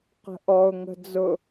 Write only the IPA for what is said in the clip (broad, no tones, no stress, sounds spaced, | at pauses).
q ə̤ ʔ ɔ ʊ̯ ŋ ə̤ d͡z ʊ